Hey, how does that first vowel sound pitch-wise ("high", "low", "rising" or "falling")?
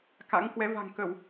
rising